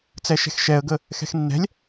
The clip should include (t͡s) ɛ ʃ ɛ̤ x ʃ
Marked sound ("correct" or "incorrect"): correct